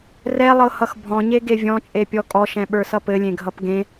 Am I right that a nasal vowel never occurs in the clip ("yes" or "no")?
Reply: no